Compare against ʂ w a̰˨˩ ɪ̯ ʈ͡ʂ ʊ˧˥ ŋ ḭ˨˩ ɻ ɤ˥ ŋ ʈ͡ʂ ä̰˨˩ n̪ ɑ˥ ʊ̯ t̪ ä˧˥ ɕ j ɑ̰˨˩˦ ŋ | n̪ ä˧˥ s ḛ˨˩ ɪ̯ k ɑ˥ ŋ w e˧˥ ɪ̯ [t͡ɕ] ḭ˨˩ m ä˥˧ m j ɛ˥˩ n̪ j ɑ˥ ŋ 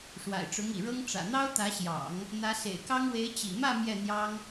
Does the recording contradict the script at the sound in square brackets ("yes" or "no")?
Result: no